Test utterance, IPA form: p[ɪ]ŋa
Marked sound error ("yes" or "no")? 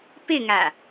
no